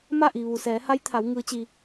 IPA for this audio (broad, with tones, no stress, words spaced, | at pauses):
ma˥˨ʔi˩ ʋu˩sɛː˩˧ha˧˥jt̪ʰa˩˧w ŋɯː˧˥t͡ɕi˧